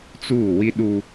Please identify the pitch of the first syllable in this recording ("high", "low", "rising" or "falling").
falling